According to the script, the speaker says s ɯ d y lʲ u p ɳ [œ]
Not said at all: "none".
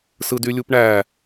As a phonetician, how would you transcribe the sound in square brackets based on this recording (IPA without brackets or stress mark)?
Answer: æ